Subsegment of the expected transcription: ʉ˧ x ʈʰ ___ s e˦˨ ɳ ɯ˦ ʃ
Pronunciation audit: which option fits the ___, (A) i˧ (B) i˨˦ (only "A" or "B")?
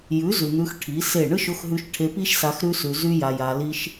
B